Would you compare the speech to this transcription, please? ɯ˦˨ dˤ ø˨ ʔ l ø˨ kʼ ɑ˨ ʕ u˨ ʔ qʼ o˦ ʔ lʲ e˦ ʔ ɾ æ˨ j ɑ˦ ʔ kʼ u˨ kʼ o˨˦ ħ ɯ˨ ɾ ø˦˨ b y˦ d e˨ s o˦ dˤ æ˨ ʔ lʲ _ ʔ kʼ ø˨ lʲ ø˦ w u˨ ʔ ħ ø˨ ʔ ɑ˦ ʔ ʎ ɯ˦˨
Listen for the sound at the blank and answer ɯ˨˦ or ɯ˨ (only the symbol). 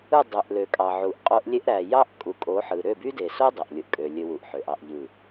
ɯ˨